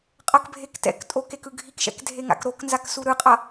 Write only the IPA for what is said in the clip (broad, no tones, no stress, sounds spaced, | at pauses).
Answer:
qʼ ʌ k bʱ e k t ɛ̰ k tʼ o k e k ɯ ɡʱ i k ʃ ɛ̰ k dʱ e ŋ a̰ k ɾ o k n z a k s u ɾ ɯ qʼ ʌ